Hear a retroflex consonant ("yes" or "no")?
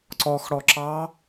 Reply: yes